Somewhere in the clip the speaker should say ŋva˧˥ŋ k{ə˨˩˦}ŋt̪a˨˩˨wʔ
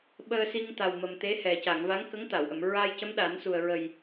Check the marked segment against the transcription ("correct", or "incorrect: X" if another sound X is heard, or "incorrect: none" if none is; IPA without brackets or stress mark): incorrect: ə˧˥